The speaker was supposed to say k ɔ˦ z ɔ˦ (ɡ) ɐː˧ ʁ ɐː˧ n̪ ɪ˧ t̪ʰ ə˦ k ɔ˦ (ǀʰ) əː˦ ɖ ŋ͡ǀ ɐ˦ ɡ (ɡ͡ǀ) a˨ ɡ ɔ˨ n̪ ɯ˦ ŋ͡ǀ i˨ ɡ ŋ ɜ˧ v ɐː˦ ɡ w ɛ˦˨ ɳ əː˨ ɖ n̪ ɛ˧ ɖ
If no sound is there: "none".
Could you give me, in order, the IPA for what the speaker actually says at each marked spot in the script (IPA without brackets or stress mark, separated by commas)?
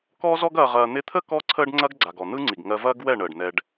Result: ɡ, ǀʰ, ɡ͡ǀ